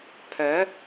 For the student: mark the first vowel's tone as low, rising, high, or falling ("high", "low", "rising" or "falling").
rising